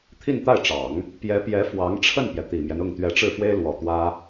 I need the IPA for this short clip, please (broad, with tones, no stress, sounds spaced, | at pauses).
t̪ʰ i˥˧ n t̪ a˥˩ ɪ̯ ʈ͡ʂ ɑ˨˩˦ ŋ | p j ɛ˧˥ p j ɛ˧˥ f w ɑ˧˥ ŋ ʈ͡ʂʰ ə˥˩ n p j ɛ˩ t̪ i˨˩ m j ɛ˦ n ʊ˥˩ ŋ t̪ ɥ ɛ˧˥ ʈ͡ʂ ɻ̩˥˩ f w e˥ ɪ̯ l w ɔ˨˩ t̪ w ä˥